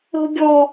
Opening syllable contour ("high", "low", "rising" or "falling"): high